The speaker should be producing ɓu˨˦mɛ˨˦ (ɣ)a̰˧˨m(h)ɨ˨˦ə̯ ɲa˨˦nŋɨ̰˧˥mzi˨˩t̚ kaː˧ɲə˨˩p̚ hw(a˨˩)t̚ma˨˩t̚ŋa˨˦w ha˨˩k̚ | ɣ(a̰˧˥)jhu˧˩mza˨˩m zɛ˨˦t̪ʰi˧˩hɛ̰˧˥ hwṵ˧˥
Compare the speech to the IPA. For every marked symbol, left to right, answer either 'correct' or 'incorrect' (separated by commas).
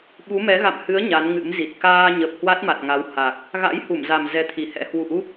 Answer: correct, correct, incorrect, correct